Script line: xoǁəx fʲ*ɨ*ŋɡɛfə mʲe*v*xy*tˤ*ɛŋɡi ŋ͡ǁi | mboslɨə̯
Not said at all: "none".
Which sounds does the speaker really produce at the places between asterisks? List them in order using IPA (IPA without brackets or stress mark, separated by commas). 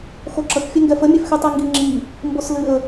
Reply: ɛ, f, tˤ